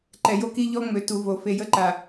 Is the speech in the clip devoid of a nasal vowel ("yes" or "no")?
yes